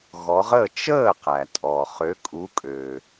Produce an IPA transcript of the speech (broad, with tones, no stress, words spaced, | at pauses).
ɣɔ˨˦ ʁəː˥˩ t͡ʃəː˥˩ qæ˩tʼɔ˩χø˨˦ kʼu˨˦kʼø˩